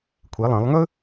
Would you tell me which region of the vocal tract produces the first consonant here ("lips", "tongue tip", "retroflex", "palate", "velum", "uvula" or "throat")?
velum